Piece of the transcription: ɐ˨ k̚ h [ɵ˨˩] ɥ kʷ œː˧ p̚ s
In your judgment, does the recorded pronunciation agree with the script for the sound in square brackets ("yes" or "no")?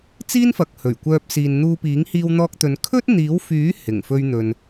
yes